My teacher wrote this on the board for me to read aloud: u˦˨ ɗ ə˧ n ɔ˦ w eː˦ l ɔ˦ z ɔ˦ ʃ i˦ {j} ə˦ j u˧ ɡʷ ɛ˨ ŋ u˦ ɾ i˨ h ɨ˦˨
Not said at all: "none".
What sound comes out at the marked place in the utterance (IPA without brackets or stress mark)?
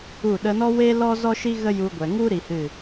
ɣ